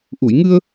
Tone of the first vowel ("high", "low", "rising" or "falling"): low